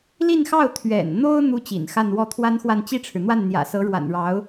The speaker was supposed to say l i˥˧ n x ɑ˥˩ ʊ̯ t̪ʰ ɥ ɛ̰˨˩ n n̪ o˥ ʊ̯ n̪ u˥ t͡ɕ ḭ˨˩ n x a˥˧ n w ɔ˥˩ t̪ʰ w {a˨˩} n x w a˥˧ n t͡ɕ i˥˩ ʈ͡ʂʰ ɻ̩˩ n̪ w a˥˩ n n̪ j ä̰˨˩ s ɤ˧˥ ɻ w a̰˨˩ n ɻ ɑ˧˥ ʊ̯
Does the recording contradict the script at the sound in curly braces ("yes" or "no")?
yes